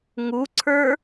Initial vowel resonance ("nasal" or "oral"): oral